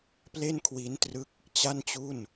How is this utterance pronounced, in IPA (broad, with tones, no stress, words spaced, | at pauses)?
ple˥˩nkʰwi˦˥ntrɯ˦˥k̚ | t͡ɕa˥˩nt͡ɕu˥˩n